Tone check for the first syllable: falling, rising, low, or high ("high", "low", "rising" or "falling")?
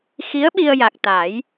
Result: rising